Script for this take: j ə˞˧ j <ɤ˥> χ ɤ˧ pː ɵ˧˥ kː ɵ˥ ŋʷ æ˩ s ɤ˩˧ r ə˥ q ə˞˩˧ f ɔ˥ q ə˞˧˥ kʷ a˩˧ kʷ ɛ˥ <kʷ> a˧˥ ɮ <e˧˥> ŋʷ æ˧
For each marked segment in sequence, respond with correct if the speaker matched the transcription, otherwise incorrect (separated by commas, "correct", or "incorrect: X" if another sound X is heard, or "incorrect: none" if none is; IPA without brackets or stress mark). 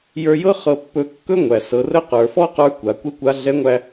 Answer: correct, correct, incorrect: ɛ˧˥